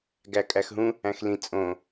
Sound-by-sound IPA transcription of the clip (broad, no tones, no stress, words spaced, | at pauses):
ɡækʼæxɦũ | æ̃xlĩ t͡sʼõ